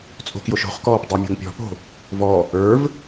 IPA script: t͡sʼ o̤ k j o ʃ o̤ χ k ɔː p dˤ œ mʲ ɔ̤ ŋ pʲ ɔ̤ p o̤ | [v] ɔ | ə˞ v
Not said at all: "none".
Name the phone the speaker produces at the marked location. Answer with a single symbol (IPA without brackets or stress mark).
v